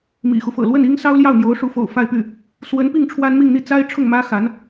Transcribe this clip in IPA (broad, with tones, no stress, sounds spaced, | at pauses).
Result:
m ḭ˨˩ x u˦ f ɤ̰˨˩ l w ə˥˩ n i˥ ŋ s ɑ˥ ʊ̯ l j ɑ˥˩ ʊ̯ n̪ j o˧˥ ʊ̯ ʂ u˧˥ f o̰˨˩ ʊ̯ f a˥˧ ɪ̯ p y˥˩ | s w ə˧˥ n p i˥˩ ŋ ʈ͡ʂʰ w a˥ n m i˥˧ ŋ n̪ i˥˩ t͡s a˥ ɪ̯ ʈ͡ʂʰ ʊ˥˩ ŋ m ä˥ x a˧˥ n